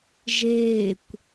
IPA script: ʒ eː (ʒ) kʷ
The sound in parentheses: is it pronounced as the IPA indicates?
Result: no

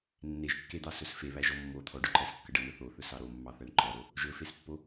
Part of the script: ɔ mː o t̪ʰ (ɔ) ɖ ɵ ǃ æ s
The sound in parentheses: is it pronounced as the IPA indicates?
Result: yes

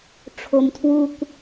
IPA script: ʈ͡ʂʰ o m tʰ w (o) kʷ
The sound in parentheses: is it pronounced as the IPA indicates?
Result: no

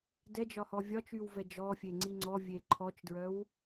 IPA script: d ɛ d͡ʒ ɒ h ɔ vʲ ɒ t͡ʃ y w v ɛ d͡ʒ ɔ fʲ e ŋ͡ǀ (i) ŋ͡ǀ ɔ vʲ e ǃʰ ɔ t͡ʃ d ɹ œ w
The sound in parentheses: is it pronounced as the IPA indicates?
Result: yes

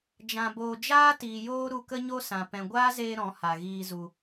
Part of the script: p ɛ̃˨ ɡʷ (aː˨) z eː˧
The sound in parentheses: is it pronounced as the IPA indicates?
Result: no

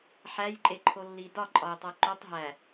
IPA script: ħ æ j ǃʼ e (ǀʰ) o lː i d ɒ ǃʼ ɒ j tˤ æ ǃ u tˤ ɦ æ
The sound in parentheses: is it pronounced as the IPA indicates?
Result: no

